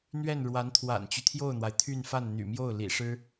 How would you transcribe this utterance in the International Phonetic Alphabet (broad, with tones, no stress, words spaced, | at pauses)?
n̪ɥɛ˥˩n ɻwa˧˥nt̪ʰwa̰˨˩nt͡ɕy˦ t̪ʰjo˥˩ʊ̯n̪wa˩ɪ̯t̪ʰy˥˧nfa˥˩n n̪y̰˨˩mjo˥˩ʊ̯ lḭ˨˩ʂɻ̩˥